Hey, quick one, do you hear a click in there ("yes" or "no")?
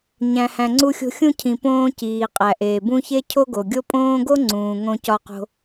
yes